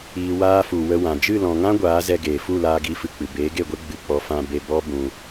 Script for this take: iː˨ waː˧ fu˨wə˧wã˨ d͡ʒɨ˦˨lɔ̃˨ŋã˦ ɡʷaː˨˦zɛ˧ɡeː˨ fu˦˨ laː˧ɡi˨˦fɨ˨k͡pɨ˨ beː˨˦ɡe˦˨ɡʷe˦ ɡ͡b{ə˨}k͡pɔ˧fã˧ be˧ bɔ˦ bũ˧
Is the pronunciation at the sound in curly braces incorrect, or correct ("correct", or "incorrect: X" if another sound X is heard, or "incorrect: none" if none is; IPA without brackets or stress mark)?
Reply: incorrect: ɨ˨